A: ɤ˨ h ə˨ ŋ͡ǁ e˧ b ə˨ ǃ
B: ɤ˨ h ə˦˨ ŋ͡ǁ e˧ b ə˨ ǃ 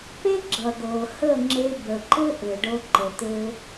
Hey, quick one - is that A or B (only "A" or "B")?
B